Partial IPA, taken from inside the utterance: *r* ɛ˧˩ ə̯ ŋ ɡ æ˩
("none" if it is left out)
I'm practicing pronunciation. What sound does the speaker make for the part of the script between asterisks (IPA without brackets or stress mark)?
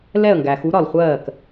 l